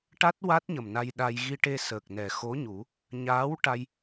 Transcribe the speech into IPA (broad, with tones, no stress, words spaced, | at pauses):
ʈa˦˥t̚ wa˦˥t̚ɲə˨˩m na˧jɗa˧j ɣi˧ʈe˧səː˨˩k̚ nɛ˨˩ xo˧˥ɲu˨˩˦ | ɲaː˧˥wʈa˧j